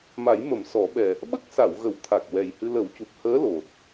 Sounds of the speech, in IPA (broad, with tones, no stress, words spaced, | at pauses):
ma˨˩˦jmə˨˩˦msɔ˨˩˦ɓɛ˨˩ | ɓə˦˥k̚sa˨˩˨wɣə˨˩˨wt̪ʰa˨˩k̚ wɛ˨˩jhɨ˧ lə˨˩˦wcu˨˩p̚ həː˧˥lo˨˩t̚